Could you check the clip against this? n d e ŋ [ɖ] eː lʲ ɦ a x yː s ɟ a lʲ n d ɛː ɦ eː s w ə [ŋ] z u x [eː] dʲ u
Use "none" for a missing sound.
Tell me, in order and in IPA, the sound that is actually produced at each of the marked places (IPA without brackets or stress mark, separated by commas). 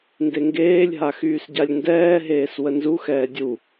ɡ, n, ɛː